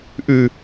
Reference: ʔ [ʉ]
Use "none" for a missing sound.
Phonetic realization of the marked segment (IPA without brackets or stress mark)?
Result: ʉ